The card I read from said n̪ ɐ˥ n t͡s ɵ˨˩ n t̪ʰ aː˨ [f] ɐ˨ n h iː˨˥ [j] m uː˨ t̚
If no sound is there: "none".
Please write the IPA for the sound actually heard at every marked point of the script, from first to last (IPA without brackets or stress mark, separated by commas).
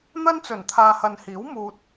h, w